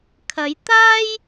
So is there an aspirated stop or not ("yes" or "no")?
yes